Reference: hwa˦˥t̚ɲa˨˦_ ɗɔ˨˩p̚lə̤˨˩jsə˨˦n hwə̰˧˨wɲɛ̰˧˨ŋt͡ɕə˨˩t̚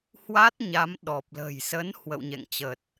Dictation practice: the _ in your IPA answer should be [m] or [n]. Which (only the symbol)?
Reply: m